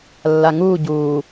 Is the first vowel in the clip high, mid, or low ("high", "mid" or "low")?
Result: low